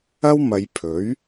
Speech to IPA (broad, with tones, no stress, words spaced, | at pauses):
ɐ˥wmɐ˨˧jpʰɵ˨˥ɥ